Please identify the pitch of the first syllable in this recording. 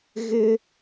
high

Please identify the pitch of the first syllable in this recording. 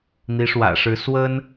rising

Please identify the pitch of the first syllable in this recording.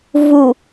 low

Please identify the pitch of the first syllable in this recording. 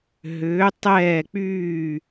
rising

